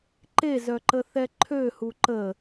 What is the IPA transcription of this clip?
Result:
ǃ e z œ ǃ ə θ ɛ ǃʰ ø h u ǃ ə

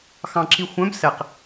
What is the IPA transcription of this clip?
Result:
x ɑ̃ ǁ i xʷ œ̃ b s ɛ q

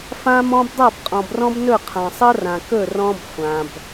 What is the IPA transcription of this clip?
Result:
f ã˦ m ɔ̃˦ b dˤ a˦˨ b qʼ ɔ̃˨ b r ɔ̃˦ b n ɵ˦˨ qʰ ã˨ sˤ ɤ˦ r ã˨ k ɵ˦˨ r ɔ̃˦ b χʷ ã˨ b

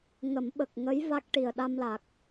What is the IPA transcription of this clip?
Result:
ŋ ə˨˩˦ m ɓ ə˨˩ k̚ ŋ ə˧˥ j v a˦˥ k̚ ʈ i˨˩ ə̯ ɗ a˧ m l a˨˩ k̚

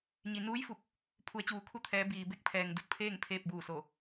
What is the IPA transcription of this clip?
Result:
ɲ i˩ n uː˧˥ j f u˧˩ k̚ | pʰ u˩˧ ə̯ t͡ɕ uː˩˧ kʰ u˧ t̪ʰ ɛː˩˧ b iː˩ b e˧˥ k̚ pʰ ɛː˩ ŋ d u˧˩ t̚ pʰ eː˥˨ ŋ pʰ eː˥˨ p̚ b uː˧˩ s o˧˩

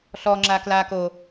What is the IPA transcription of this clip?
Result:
ɬ ɔ ŋ͡ǁ a k l a k o

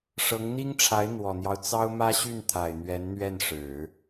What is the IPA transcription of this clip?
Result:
ʂ ɤ˧˥ ŋ n̪ i˥ ŋ ʈ͡ʂʰ a˧˥ ɪ̯ n̪ w ɔ˨˩ n̪ j ɑ˦ ʊ̯ t͡s ɑ˥ ʊ̯ m ä˥ ɕ y˥˩ n t̪ʰ a˨˩ ɪ̯ n̪ ɥ ɛ˧˥ n n̪ ɥ ɛ˥˩ n ʂ ɻ̩˨˩˦

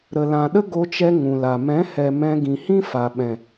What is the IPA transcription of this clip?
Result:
ɾ ə˨ l ã˨ ɗ ə˦ ɡ o˧ t͡ʃ ɛ˧ ŋ ũ˨ l a˨ m ɛ̃˨˦ h ɛ˨ m ɛ̃˧ ɡ ĩ˨ h ĩ˦ f a˨ ɓ ɛ̃˨

